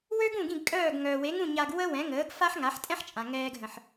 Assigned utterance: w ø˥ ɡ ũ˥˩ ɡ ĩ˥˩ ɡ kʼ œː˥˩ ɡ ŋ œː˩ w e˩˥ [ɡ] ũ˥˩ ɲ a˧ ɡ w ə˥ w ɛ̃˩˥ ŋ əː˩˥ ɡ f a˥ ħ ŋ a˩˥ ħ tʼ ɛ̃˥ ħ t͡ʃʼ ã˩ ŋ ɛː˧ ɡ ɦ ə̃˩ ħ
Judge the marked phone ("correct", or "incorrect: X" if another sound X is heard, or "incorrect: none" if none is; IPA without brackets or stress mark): incorrect: ŋ